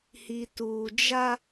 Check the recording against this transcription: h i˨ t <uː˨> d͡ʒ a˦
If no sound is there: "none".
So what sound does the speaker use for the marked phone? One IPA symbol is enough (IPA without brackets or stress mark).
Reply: uː˨